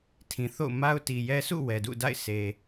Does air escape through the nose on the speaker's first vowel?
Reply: yes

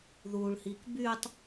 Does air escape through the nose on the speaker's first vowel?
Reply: no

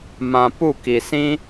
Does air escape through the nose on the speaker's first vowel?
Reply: yes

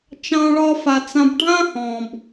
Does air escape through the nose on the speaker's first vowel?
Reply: yes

